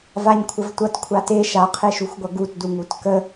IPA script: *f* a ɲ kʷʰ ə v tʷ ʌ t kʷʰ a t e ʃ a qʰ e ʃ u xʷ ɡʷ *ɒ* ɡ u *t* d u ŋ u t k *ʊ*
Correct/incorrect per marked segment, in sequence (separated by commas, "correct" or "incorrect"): incorrect, incorrect, correct, incorrect